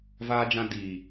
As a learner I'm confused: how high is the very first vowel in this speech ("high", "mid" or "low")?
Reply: low